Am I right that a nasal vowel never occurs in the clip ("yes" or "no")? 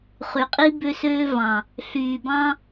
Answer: no